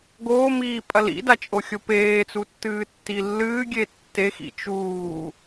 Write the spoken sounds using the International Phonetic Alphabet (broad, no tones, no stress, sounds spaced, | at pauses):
ɡ oː m iː pʼ ɐ l ḭ d a t͡ʃʼ o xʲ o p eː t͡s u tː ɨː tː i lː ɨː ɡʲ e tː e x ḭ t͡ʃ uː